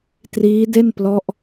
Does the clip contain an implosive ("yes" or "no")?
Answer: no